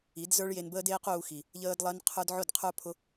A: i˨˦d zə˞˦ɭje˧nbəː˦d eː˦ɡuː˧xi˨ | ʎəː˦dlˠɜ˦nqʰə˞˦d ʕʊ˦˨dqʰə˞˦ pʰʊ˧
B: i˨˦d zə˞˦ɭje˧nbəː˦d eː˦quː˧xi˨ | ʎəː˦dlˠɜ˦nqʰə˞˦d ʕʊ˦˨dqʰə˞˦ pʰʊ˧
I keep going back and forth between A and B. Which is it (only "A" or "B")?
B